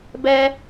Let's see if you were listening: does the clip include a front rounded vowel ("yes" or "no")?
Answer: no